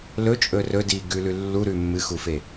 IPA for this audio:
lɵt͡ʃʼɵ rɵdiːɡʉlʉ lːuɾʉ mːɨxufe

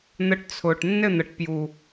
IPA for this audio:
n̪ə˧ʈt͡sʰʊː˨ʈ nːɘ˦˨n̪ə˨ʈpjuː˨

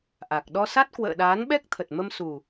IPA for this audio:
ʔa˨˩k̚ ɗɔ˧sa˦˥t̚ kwə̰ː˧˨ɗaː˨˦n ɓɛ˦˥k̚t̪ʰə˨˩t̚mə˧m su˨˩

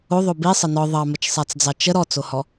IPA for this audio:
oðˤo bisˤə nɔ ðˤɑmət͡ʃsˤat͡sd͡zɑ t͡ʃə ɾɔt͡sohɔ

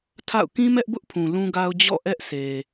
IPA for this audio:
tʰa̰˦˨ʊ̯ kĩ˦mɛ˦ʔbʊ˦ʔpʰũ˨ lũ˦ɡa˦ʊ̯ d͡ʑɔ̰˦˨ ʔɛ˦ʔse˨

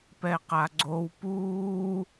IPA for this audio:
pɛqaɡ͡ǀow puː

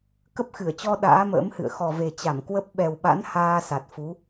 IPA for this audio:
kə˦˥p̚xɨ˧˩ə̯t͡ɕɔ˧ ɗa̰ː˧˥mə̰ː˧˥mhɨ̰˧˨ə̯ xɔ˨˩ve˨˩t͡ɕa˧˩mkwə˦˥p̚ ɓɛ˨˩wɓa̰˧˥n haː˧ sa˨˩t̚fu˨˦

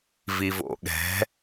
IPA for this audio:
vivo̰ɠɛ̤

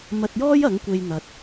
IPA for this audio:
mɐ˧t̚jɔː˥j ɐ˨˥ŋkʷe˧j n̪ɐ˧t̚

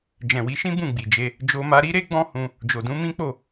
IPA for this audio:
d͡ʒɛ̃˨wi˨˦ʃĩ˦ bũ˦˨ɡ͡bi˨d͡ʒe˧ | d͡ʒo˧ma˧ɾi˦ɾe˦ ɡ͡bɔ̃˦hũ˧ | d͡ʒo˨dũ˧mĩ˦k͡po˦˨

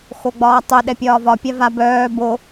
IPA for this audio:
xoɡ͡bɒːtˤo ɗɛpʲɒːvɒ pʲava bœː bo

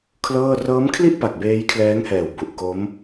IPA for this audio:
kʰlɤː˥˩ rɤː˦˥mkʰli˥˩ʔpa˨˩k̚ beː˦˥jkʰlɛː˦˥ŋhɛː˨˩w bu˨˩ʔko˦˥m

